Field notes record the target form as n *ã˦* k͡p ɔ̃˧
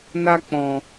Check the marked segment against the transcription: incorrect: a˦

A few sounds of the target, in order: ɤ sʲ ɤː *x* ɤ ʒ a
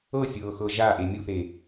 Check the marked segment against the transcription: correct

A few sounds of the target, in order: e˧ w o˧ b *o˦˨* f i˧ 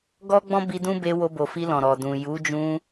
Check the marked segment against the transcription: incorrect: o˨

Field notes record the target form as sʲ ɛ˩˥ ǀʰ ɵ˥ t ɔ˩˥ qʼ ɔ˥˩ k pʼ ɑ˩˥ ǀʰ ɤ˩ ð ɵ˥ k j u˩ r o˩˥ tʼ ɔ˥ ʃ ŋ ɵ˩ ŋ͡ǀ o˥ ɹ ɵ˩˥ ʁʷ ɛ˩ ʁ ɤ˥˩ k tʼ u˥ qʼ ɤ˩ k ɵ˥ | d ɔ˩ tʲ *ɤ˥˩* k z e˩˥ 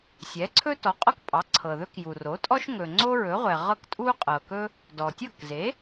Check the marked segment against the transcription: correct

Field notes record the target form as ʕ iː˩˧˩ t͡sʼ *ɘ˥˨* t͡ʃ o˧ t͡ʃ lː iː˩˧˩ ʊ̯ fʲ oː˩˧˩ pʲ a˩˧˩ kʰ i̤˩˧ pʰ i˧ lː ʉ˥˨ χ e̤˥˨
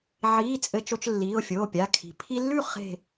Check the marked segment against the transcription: incorrect: ɘ˧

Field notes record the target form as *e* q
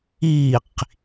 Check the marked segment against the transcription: incorrect: i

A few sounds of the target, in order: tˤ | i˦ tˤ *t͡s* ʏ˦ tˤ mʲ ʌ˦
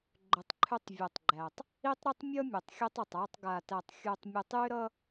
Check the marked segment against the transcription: incorrect: ɾ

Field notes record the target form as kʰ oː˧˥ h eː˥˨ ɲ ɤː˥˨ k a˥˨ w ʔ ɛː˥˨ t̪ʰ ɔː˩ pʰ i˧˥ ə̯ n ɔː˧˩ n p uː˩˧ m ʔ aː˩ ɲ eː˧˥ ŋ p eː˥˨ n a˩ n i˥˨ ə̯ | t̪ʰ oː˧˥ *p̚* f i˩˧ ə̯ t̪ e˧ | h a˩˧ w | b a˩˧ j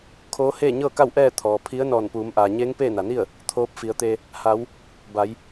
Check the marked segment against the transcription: correct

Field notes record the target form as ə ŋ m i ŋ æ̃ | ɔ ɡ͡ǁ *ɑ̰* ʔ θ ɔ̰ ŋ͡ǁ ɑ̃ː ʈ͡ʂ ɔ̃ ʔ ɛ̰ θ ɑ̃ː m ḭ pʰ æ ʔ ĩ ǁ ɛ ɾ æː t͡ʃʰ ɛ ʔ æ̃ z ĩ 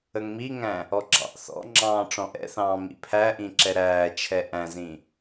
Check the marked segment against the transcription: correct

